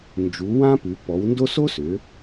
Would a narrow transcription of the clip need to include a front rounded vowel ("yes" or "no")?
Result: yes